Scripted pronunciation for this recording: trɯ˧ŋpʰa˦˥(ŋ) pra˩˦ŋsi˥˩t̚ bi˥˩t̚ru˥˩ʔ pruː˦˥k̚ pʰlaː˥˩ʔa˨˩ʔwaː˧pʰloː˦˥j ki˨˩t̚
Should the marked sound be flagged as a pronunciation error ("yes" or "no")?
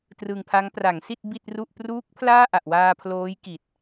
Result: no